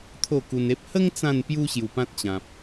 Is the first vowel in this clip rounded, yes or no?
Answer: yes